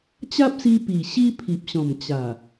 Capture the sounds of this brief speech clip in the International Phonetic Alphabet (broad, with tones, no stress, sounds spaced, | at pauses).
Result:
t͡ɕ a˦ p̚ s i˧ p i˨˩ ɕ i˦ pʰ i˨ p̚ ɕ ɔ̃˨˩ m t͡ɕ a˨˩